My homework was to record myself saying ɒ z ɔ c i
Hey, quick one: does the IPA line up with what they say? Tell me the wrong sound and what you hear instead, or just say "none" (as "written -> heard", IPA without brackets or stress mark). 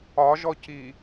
z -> ʒ